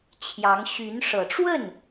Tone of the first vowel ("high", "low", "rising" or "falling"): rising